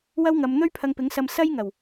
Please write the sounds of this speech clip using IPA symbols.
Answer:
w ɐ˥ w ŋ ɐ˨˧ m n̪ ɵ˥ ɥ pʰ ɐ˧ ŋ p ɪ˨˥ ŋ s ɐ˧ m s ɐ˥ j ŋ ɐ˨˩ w

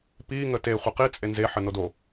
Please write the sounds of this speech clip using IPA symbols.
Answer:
p i ŋ ə t e χʷ ə q i t͡sʼ e n z e ħ ə n o d o

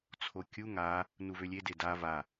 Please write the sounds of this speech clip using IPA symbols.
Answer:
t͡sʰ o kʲ u ŋ a | n u v ø lʲ e d e d a v a

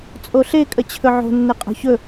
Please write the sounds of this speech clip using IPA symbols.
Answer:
t͡sʼ o ɬ e kʼ ə t͡ɕʰ ɵ ʕ o̤ nː ɘ qʼ o̤ ç ɵ

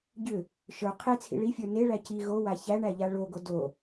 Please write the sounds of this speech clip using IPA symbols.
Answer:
ɟ ʏ | ʃ ə˞ qʰ e t͡sʰ ḭ ɭ i fʲ ə˞ n e ɭ æ c i ɣ o w a ç æ ɳ æ ʎ a ɭ o ɡ o d o

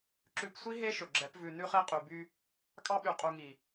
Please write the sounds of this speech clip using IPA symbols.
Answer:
ǁ ʉ˧ p sʷ i˦ ɦ e˦ ʃ ɵ˨ ɡ͡ǁ ɛ˨˦ p v ʉ˨ n ʉ˧ χ e˧ qʼ y˨ b y˧ | kʼ ɑ˧ ɓ y˨ qʼ u˨ ŋ i˨

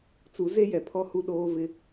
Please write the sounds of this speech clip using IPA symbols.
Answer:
t͡s u˨˦ z e˦ j ɛ˨ pʰ ɔ˦ h u˦ ɗ oː˦ v ɪ˦

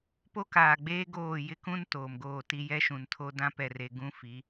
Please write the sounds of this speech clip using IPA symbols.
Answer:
p o˦ k aː˨ ɡ͡b eː˦ ɡ oː˦˨ j ɪ˦ k ũ˦ n t oː˨ m ɡ oː˦˨ t i˦ j ɛ˦ ʃ ũ˨ n tʰ o˦ d ã˦ p ɛ˨ r e˨ ɡ ũ˦ f i˨˦

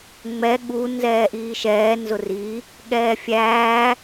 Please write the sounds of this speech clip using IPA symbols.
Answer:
ŋ͡m ɛ ɠ u n z ɛː ʔ iː ʃ ɛː n z ʊ r i | ɠ ɛː fʲ æː

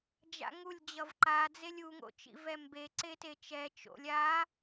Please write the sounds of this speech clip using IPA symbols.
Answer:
d͡ʒ a̰ ŋ u lʲ d͡ʑ ʌ v ǃ a d͡z e lʲ u ŋ o̰ t͡ʃ ḭ v ɛ m b e ǀ e t e t͡ʃ ɛ t͡ʃ o̰ lʲ a

